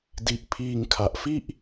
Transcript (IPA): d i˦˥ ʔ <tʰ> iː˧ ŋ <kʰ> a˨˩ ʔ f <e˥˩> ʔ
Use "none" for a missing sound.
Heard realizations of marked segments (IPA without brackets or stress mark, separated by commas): pʰ, kʰ, i˥˩